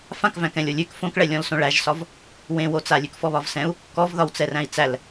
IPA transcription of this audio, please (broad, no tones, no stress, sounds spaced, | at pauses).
f ã k v æ̃ k ɛ̃ lʲ o lʲ ʉ k f õ k ɭ ɛ lʲ ɔ̃ l s õ ɭ æ ʒ s ɒ v | w ẽ w o t͡s a lʲ ʉ k f ɔ β ɒ v s ɛ̃ u̯ | k ɔ v ð ɒ w t͡s ɛ r æ̃ i̯ t͡s æ l